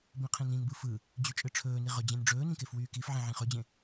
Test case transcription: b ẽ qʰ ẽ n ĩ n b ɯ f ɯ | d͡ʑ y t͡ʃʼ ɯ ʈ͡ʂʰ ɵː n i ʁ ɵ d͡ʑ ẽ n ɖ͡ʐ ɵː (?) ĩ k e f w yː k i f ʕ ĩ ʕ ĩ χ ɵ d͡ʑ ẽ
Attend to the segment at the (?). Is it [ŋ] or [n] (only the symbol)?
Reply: n